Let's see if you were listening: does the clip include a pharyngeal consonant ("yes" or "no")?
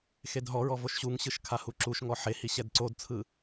yes